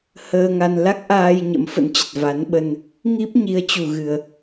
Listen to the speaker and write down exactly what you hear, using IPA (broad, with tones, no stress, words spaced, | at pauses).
həː˧ŋa˧n la˦˥k̚ʔaː˧j ɲə̰˧˥mfə̰˧˥nt͡ɕə˨˩t̚ va˨˦nɓə˧n | ŋi˦˥p̚ ɲi˨˦ə̯ t͡ɕu˨˩ɣɨ˨˩ə̯